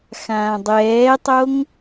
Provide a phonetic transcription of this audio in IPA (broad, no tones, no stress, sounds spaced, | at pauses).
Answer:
x ãː dˤ ɛː tˤ o ŋ